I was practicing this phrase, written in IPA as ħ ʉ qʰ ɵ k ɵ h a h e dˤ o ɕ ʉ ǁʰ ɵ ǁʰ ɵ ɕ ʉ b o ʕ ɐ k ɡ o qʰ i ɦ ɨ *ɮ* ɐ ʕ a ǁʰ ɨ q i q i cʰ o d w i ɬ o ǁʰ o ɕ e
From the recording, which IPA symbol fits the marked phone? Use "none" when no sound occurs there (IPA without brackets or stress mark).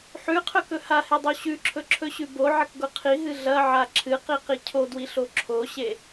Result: ɮ